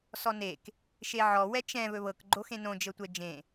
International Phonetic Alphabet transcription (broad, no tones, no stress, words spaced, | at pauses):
sɔnek | ʃeʕɔ wɛt͡ʃɛ̃ βɵβɤk ɡ͡ǃoxẽnõ d͡ʒɤtʷɛd͡ʒẽ